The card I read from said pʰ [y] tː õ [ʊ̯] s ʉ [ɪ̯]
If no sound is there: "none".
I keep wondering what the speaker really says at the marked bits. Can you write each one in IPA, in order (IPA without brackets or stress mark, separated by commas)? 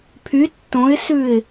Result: y, ɪ̯, ɪ̯